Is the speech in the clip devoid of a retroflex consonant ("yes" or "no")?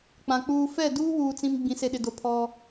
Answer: yes